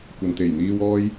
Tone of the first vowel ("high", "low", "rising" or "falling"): low